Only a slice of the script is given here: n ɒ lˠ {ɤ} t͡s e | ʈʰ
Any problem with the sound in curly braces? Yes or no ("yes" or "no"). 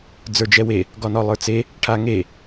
yes